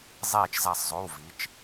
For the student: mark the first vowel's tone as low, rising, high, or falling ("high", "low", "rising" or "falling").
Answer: falling